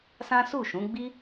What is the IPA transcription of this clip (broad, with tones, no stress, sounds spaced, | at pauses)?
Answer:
s ã˦ s u˦˨ ʃ ũ˨˦ ɡ͡b i˦